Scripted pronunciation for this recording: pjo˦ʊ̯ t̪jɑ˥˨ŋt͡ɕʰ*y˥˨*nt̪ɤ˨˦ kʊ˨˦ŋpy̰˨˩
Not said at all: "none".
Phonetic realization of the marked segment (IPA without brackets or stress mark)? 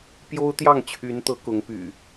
y˨˦